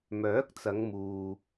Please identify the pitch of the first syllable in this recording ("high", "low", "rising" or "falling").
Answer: rising